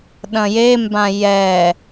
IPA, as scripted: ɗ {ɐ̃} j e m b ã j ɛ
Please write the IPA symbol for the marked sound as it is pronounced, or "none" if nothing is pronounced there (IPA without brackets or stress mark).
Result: ɐ̃